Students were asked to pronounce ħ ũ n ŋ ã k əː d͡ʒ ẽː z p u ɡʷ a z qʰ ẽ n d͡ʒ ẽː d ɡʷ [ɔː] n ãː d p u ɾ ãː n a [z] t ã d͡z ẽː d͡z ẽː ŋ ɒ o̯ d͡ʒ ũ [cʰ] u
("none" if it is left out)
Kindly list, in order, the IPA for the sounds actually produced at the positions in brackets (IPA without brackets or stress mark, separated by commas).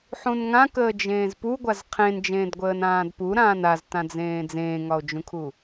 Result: əː, z, kʰ